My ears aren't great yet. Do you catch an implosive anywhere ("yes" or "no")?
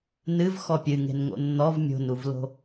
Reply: no